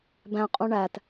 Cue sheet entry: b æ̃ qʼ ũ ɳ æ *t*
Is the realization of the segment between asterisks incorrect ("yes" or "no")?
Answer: no